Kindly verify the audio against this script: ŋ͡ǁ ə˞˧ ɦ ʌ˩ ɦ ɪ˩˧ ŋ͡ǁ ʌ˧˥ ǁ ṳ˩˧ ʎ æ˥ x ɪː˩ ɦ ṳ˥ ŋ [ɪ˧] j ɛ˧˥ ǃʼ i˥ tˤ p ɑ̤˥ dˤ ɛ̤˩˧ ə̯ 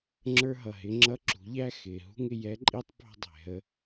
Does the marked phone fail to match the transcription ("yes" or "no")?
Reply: no